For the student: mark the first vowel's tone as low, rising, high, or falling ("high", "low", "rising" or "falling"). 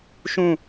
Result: falling